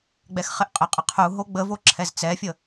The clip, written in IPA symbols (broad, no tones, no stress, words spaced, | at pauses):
ɡ͡bɛxχɪʔqʼɪqʼɪ qʰu ɦoɡ͡bəvo ǁʰɛzt͡sɛfʲə